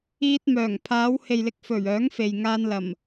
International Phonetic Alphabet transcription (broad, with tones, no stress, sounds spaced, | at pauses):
iː˧ t̚ m œː˨˩ ŋ pʰ aː˨˧ w h e˨ j l ɪ˨ k̚ f ɵ˨˩ ɥ œː˨˥ ŋ f e˨ j ŋ aː˧ n l ɐ˨˩ m